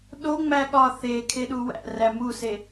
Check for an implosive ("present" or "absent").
present